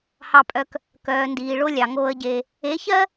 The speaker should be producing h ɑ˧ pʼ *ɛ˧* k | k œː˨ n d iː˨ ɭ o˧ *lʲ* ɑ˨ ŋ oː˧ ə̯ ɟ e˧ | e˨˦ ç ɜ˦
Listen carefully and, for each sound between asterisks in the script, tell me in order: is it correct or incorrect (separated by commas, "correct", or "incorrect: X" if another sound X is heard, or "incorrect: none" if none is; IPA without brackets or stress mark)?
incorrect: œ˧, correct